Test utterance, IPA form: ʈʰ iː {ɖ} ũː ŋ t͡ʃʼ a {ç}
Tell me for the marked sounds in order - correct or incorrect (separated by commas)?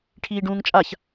correct, correct